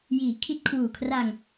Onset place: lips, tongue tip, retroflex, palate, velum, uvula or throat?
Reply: palate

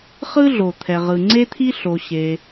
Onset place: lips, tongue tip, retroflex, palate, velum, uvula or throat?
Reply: uvula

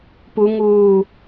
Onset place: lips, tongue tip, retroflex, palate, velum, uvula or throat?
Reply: lips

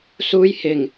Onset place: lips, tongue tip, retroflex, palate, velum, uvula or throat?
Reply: tongue tip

